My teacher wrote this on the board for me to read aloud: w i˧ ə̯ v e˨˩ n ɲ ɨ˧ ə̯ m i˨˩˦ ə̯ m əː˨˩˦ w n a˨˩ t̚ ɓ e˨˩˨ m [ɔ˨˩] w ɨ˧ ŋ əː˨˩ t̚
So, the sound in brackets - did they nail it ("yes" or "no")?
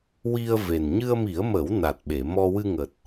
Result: no